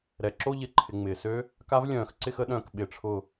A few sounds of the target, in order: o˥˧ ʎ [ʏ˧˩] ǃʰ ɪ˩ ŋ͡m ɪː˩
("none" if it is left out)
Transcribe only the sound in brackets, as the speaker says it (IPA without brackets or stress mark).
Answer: ɪ˧˩